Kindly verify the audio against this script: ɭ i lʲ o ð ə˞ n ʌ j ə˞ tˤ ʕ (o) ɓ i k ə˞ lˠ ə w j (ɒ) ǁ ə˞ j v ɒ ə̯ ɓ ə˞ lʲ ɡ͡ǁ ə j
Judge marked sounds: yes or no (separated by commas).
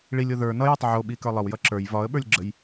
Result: yes, no